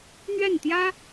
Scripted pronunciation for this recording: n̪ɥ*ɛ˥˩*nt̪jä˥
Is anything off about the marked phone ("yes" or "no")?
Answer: no